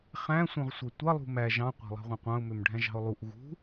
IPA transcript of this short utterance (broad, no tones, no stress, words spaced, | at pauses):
χæ̃sʷœ̃ʁ sʷætʷɑlˠṳ mæ ʒɑ̃qʷæ̤lˠɑ̤ʁʷɑ̃ qʷɑ̃ʊ̯mømɖʱæ̃ʒɑ̤ʊ̯ lˠuʔ ɣṳ